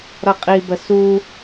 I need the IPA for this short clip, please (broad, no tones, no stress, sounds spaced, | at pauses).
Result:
ɾ ʌ qʼ i b ə s u